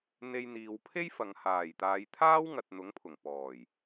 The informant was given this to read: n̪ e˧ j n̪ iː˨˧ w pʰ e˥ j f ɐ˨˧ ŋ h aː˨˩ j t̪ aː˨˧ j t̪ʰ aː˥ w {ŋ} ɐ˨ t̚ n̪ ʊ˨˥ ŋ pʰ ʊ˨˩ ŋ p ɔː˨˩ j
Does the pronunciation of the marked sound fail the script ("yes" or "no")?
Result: no